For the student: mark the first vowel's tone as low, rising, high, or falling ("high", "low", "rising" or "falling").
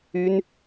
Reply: high